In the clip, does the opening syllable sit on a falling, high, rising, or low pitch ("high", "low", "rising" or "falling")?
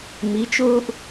rising